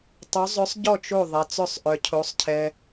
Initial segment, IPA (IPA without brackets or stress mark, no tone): tˤ